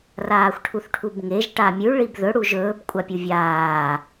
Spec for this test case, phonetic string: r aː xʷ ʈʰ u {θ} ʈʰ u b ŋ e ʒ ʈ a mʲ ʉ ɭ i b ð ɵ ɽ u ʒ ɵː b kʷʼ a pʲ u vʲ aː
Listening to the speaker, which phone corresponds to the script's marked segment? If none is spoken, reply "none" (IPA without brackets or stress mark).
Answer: θ